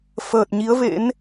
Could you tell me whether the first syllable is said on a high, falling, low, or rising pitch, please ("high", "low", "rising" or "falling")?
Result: low